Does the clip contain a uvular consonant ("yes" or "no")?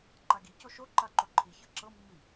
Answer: no